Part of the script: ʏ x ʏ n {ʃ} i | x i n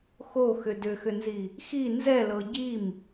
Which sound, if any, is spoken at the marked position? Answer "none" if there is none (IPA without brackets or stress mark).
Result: z